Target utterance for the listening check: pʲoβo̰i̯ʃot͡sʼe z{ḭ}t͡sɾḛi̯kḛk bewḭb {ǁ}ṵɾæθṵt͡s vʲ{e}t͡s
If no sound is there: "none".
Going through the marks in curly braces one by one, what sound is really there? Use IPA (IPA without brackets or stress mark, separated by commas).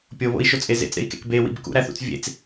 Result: ḛ, k, ḛ